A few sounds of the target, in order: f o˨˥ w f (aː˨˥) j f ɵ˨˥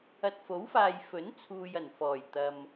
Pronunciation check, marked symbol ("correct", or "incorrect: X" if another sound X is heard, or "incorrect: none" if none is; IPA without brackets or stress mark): incorrect: aː˨